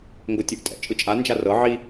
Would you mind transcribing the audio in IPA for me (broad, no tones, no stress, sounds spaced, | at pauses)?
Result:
ŋ ɡ o tʲ u ʔ tʼ ɛ̰ t͡ʃʼ ɯ t͡ʃʼ a n d͡ʒ a r ɤ ʕ i